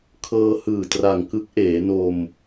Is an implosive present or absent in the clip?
absent